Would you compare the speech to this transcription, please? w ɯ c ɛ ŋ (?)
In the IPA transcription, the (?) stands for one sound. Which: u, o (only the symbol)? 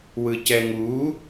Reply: u